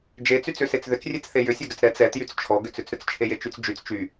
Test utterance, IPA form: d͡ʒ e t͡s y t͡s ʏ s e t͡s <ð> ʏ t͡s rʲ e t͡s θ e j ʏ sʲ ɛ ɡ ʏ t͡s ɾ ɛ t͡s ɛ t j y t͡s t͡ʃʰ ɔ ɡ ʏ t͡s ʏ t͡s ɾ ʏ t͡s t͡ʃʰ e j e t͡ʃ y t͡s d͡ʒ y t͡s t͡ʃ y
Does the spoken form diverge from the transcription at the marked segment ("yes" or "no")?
no